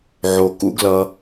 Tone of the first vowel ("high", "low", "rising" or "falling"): low